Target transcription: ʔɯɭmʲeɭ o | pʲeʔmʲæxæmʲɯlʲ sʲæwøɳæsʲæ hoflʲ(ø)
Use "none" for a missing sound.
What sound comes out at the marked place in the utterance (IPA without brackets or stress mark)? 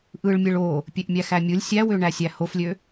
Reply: ø